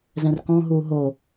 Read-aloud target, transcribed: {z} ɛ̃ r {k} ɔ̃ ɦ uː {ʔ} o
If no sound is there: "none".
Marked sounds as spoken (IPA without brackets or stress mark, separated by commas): z, k, ɦ